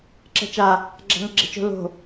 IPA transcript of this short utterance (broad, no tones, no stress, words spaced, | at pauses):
ǁɛ̤t͡ʃa | ɡ͡ǁa̤ŋɐɡ͡ǁɛ̤t͡ʃo̤ lo̤